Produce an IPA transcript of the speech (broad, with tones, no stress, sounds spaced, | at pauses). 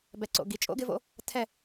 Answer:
b ɛ˨ ǀ o̰˨ ɡ i˨ t͡ʃʼ o̰˦ ɡ ɪ˧ v o̰˧ | tʰ ɛ˦˨